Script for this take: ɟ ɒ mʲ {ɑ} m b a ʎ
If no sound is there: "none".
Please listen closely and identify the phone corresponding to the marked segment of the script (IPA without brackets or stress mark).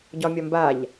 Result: ɒ